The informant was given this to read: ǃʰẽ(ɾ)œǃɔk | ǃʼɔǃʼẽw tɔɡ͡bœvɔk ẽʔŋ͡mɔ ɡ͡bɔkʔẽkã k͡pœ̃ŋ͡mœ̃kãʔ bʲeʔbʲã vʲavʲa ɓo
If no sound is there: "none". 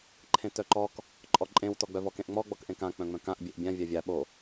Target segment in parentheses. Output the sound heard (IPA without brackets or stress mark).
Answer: t